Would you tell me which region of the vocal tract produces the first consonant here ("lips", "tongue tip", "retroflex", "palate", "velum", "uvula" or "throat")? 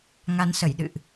velum